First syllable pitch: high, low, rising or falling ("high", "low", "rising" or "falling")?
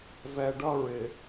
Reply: low